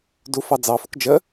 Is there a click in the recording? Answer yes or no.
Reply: no